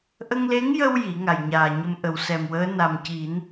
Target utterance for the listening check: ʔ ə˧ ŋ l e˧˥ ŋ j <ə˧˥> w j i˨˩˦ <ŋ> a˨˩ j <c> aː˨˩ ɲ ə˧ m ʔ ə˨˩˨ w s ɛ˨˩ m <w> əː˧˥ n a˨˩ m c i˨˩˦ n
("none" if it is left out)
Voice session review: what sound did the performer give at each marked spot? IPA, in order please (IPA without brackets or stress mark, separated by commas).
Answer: ə˧, ŋ, ɲ, w